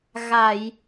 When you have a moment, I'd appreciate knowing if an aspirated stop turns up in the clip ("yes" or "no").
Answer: no